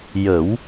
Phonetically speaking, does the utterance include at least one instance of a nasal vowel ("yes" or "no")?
no